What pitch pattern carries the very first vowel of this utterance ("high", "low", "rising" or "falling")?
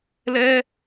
high